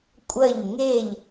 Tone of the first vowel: falling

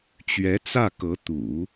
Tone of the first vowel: rising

